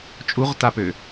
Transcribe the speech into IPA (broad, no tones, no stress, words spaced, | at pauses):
t͡ʃʼuʁtapø